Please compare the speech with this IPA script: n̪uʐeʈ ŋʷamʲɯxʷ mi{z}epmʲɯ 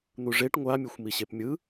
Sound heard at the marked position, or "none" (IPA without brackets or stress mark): ɕ